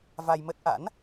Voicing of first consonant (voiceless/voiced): voiced